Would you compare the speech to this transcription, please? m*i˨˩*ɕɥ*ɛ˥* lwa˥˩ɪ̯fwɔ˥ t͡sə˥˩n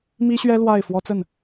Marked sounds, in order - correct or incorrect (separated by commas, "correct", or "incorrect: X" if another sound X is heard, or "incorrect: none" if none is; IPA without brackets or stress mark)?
incorrect: i˥, correct